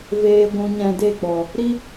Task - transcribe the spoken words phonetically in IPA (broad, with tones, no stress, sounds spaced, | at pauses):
v eː˧ ɡʷ ũ˧ ɲ ɛ̃˧ d e˦˨ k͡p ɔ˨ | ɾ i˦